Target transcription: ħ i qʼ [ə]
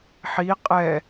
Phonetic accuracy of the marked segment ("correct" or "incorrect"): incorrect